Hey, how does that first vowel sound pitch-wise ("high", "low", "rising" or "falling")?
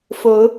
rising